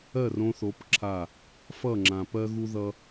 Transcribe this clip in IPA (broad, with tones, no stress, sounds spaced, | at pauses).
ɜ˦˨ r õ˧ θ o˨˦ p ǁʰ a˦˨ | f ʌ˦˨ ŋ͡ǁ ã˨ p ɜ˦ ɣ u˦ ð ʌ˦